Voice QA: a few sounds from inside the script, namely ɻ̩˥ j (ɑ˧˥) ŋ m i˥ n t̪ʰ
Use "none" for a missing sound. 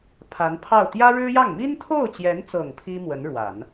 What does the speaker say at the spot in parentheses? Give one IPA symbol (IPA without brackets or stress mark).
ɑ˥˩